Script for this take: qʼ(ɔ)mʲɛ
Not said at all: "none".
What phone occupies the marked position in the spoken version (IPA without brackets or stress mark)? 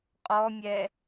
ɔ